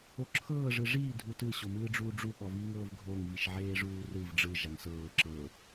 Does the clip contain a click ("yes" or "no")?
yes